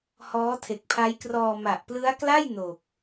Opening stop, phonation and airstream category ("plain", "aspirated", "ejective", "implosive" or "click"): aspirated